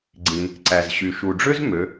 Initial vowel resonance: nasal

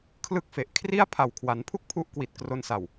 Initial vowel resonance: oral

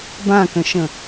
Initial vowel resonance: nasal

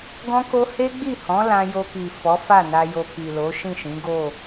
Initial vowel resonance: nasal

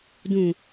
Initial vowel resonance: nasal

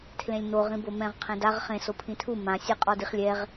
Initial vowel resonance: nasal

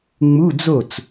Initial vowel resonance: oral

